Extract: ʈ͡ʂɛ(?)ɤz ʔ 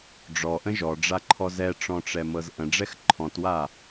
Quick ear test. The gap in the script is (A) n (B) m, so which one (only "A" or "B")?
B